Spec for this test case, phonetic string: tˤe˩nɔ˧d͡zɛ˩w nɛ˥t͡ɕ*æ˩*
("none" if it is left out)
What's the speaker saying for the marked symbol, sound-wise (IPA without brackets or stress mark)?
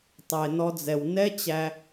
æ˧